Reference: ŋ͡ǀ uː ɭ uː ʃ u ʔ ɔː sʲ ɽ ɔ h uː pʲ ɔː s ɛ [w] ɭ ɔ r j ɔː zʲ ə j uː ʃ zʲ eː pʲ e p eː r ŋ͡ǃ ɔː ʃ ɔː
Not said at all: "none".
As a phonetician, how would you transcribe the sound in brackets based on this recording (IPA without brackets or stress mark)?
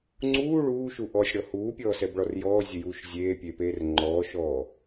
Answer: b